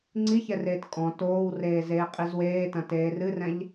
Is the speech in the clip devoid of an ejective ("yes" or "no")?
no